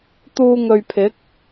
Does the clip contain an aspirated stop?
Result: yes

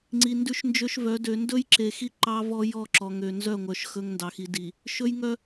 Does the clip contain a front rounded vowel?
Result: yes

